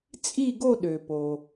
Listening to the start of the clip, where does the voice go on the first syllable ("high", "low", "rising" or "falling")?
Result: falling